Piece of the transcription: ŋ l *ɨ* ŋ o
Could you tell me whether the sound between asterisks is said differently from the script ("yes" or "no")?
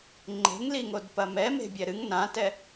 yes